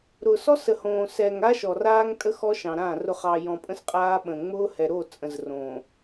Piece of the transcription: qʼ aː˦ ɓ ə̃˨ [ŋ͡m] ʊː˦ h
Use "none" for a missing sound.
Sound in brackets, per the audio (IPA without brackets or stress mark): ŋ͡m